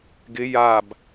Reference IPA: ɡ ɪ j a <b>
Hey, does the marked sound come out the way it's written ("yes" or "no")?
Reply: yes